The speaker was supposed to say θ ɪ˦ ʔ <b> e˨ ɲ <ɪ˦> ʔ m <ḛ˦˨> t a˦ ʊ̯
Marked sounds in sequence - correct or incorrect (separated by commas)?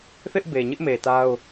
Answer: correct, correct, incorrect